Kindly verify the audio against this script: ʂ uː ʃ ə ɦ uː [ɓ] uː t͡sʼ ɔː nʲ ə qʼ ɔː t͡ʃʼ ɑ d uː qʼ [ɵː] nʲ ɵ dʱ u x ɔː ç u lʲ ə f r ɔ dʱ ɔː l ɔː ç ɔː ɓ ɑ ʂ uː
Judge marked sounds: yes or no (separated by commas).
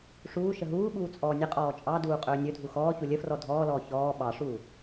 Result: yes, yes